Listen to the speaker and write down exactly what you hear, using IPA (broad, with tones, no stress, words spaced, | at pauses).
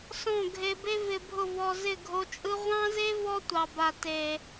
sɔ̃˦˨ɡʱe˧be˦ vɪ˧bʱʊ˦˨vɔ˧ zɪ˦˨ɡʱo˧t͡ʃʼɯ˦ ʁʷɑ̃˦ze˦ vɔ˦tʷɑ˨ba˨ te˨